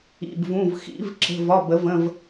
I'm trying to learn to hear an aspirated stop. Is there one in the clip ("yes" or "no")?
no